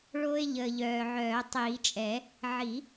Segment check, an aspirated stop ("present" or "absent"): absent